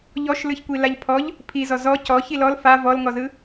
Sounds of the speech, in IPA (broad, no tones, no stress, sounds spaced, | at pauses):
ʎ ɔ ʃ l ɯ ç kʷ i l a ʎ pʰ ɔ ʎ | pʰ i z ɔ z ɔ c ɔ ç i l ɔ l f a v ɔ l ŋ ɔ z ɯ